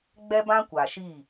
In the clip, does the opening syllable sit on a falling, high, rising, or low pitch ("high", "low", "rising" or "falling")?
high